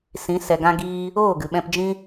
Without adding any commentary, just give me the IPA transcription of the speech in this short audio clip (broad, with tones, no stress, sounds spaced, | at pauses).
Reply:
s ĩ˨˦ s ɛ˧ ɡ ã˦ ɡ iː˦ | oː˦˨ ɡ ɨ˨ ɓ ɛ̃˧ p d͡ʒ ĩ˦